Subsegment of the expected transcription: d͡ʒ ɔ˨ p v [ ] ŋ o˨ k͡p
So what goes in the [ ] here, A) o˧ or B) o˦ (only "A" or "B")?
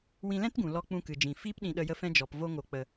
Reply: A